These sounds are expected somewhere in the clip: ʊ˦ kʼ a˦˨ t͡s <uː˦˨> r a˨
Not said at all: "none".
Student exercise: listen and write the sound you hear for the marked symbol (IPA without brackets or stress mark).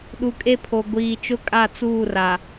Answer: uː˦˨